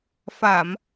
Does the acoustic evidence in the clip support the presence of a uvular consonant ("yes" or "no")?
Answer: no